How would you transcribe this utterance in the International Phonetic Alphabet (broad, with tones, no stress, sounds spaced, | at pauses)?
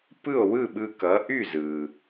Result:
p ɯ˥˩ o̯ w ɯ˥˩ ɓ ɯ˧ k ʌ˩˥ ʔ y˥˩ z ɯ˩